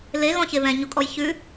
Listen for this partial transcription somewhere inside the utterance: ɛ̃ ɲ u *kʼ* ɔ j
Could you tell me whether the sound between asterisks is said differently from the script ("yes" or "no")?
no